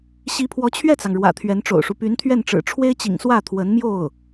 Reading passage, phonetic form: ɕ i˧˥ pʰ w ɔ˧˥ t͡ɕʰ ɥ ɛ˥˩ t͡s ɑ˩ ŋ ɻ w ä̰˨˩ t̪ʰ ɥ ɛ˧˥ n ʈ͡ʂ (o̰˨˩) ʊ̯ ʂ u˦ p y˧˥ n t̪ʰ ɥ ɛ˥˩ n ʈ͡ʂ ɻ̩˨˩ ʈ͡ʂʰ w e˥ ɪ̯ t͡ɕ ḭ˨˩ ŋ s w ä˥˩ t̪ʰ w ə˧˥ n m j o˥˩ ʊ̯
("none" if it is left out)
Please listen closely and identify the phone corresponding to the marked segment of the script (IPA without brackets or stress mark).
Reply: o̰˨˩